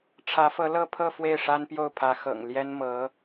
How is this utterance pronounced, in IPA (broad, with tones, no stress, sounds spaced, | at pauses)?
ʈ͡ʂʰ ä˧˥ f ɤ˧˥ l ɤ˥˧ pʰ ɤ˥˧ f w e˥˩ ɪ̯ ʂ a˥ n p j o˥˩ ʊ̯ pʰ ä˧˥ x ɤ̰˨˩ ŋ l j ɛ˥ n m ɤ˧˥